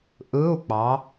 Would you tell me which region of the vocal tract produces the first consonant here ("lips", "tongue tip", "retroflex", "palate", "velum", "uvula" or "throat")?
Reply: throat